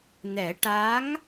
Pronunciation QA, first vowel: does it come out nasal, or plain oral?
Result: oral